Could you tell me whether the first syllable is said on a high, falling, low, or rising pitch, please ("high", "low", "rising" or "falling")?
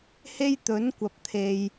high